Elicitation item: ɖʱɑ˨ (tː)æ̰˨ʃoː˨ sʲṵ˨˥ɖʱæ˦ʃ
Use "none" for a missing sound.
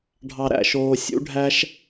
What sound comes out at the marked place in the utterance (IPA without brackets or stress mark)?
ɾ